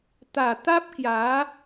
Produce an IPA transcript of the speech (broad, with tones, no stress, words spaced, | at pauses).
t̪a˨˩t̪a˦p̚kja˨˦